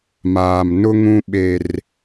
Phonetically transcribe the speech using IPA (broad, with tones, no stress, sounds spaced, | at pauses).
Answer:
m aː˨ m n ʊ˦ ŋ ũ˦ ɓ e˦ r